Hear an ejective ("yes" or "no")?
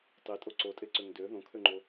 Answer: yes